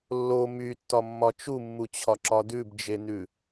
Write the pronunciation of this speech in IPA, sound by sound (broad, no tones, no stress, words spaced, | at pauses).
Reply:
lːo mytːɒmːɒ t͡ʃumːut͡ɕʰɒǁɒ dʉbd͡ʒenʉ